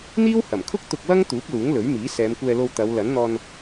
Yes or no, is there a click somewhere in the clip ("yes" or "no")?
no